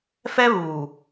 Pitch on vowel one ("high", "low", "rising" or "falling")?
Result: high